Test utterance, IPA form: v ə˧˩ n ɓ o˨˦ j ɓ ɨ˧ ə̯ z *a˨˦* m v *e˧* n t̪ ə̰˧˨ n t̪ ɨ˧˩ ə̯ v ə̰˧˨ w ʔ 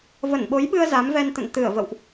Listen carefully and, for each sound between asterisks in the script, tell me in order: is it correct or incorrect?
correct, incorrect: ɛ˧

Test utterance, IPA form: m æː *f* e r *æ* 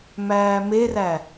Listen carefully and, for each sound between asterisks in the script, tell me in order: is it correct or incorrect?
incorrect: m, correct

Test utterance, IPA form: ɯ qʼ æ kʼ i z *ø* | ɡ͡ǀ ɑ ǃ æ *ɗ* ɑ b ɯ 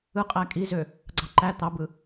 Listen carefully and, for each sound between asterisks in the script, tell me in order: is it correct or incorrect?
correct, incorrect: t̪

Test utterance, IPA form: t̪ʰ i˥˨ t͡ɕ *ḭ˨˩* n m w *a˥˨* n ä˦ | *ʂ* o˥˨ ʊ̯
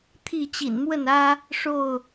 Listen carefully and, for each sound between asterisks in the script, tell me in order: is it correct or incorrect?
correct, incorrect: ə˥˨, correct

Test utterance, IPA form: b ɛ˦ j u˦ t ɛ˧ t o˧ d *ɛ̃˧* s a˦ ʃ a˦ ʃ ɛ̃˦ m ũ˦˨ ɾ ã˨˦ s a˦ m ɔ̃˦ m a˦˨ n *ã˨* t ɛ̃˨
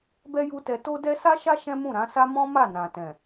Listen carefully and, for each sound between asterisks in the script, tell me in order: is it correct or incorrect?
incorrect: ɛ˧, correct

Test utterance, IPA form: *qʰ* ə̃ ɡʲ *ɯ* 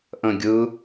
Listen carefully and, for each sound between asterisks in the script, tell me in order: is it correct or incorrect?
incorrect: ʔ, correct

